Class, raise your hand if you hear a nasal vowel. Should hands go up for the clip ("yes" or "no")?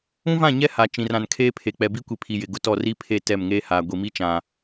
yes